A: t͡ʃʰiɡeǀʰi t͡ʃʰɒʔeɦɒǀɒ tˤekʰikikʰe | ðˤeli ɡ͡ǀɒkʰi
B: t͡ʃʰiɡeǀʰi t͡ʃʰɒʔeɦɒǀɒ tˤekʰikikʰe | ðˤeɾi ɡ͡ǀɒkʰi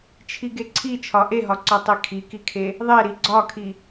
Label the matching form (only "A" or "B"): B